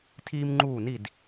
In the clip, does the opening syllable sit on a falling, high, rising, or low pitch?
high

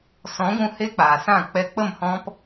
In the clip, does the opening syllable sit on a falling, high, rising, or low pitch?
rising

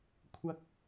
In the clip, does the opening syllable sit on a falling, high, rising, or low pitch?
high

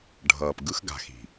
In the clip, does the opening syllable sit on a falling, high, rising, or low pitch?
low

